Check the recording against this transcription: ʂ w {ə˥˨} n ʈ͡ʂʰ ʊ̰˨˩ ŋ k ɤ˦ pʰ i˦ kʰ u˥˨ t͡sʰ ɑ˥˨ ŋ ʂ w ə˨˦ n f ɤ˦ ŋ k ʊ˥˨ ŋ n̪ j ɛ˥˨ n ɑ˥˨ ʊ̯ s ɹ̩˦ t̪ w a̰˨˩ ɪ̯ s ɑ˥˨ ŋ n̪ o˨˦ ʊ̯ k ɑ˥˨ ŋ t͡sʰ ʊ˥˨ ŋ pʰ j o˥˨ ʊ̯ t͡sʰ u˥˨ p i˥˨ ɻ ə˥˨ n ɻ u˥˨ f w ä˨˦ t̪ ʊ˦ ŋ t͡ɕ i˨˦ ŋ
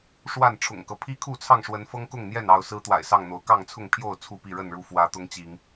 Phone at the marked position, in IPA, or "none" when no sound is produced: a˥˨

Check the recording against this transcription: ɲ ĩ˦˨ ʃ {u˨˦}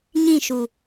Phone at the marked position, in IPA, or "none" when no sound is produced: u˨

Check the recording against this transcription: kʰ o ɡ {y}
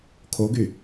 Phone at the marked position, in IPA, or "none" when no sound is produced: y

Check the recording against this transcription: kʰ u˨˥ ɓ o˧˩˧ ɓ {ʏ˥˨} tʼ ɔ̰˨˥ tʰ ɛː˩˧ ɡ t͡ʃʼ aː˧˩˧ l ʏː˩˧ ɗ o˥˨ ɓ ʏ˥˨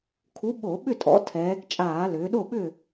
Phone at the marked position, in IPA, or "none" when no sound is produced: ʏ˥˨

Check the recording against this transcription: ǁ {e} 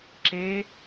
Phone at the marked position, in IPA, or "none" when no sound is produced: e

